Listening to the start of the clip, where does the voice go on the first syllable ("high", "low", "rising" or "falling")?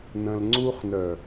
low